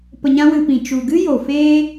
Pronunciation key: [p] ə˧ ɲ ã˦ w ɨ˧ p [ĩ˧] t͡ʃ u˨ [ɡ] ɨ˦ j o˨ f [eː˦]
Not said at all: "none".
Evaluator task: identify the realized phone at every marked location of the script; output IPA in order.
p, ĩ˨, ɡ, eː˦

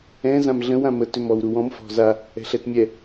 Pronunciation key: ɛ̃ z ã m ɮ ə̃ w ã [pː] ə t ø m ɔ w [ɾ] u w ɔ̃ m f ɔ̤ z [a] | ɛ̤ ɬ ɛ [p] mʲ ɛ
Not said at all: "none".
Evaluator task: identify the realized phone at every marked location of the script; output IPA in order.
m, ɾ, a, t

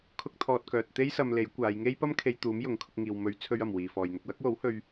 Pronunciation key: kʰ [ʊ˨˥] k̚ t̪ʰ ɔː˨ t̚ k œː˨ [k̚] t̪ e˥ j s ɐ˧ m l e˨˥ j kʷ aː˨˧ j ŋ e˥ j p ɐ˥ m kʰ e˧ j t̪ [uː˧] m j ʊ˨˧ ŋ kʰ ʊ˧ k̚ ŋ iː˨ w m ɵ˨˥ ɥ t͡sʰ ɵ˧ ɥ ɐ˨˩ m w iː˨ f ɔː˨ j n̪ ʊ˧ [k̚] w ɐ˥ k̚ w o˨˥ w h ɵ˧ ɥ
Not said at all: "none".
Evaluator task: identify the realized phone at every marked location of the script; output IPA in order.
ʊ˧, t̚, uː˨˥, k̚

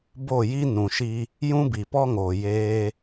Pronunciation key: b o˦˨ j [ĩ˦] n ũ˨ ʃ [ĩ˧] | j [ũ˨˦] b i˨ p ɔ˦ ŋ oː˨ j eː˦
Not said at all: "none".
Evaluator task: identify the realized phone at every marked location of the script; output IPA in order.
i˦, i˧, ũ˦

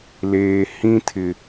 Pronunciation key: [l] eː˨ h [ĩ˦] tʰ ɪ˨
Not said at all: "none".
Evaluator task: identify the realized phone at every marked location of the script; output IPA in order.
l, ĩ˦

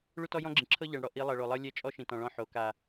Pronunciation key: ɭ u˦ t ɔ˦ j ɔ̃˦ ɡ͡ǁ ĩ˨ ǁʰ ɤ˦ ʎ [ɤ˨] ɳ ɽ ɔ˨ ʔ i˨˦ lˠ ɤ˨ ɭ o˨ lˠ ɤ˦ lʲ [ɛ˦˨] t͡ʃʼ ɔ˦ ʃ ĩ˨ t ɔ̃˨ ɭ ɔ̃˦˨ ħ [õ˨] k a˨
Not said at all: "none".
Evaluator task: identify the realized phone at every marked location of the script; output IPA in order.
ɤ˨, ɛ˦˨, o˨

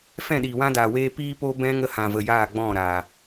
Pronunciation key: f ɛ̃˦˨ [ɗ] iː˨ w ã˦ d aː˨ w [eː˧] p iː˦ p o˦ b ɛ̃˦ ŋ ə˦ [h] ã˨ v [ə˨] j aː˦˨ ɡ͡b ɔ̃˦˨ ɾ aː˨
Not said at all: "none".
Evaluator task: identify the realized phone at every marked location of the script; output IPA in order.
ɗ, eː˧, h, ə˨

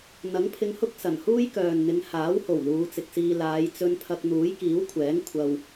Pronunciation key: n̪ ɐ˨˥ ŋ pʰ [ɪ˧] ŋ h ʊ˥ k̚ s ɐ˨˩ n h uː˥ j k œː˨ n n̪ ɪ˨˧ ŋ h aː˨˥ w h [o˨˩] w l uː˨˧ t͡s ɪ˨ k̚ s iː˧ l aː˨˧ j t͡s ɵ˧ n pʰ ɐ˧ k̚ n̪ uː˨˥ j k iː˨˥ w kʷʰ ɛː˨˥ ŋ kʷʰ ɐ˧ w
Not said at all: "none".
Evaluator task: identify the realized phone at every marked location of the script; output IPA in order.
ɪ˧, o˨˩

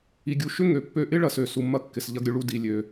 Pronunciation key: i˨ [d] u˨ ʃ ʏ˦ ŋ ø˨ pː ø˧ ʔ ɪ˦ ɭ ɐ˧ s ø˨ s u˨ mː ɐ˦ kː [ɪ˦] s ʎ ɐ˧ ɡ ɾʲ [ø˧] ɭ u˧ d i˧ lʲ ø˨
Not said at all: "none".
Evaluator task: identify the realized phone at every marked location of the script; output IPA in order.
ɡʲ, ɪ˨, ø˧

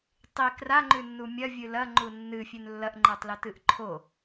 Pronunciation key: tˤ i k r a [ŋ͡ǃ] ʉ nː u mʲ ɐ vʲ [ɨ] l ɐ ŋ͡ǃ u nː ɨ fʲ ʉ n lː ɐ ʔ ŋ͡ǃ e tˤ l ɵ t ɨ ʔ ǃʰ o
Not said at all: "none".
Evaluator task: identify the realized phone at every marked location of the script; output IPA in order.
ŋ͡ǃ, ɨ

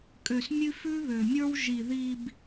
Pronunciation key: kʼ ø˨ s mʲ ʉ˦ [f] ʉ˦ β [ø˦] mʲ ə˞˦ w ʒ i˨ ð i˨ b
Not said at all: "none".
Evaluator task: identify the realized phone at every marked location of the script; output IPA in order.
f, ø˨

